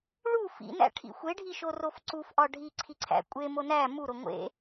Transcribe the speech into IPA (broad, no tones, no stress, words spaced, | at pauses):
ɭu fḭnæ̰ʈʰḭ xʷeɖʱiʃorof ǀufʔɒ ɖʱiǀʰiǀʰæ̰ kʷʼemo næ muɾo ŋʷḛ